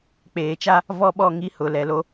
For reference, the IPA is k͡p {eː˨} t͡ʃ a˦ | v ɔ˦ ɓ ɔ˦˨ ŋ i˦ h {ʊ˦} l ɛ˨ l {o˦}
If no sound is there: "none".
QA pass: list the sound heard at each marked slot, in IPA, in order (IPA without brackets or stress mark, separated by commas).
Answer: eː˨, ʊ˨, o˦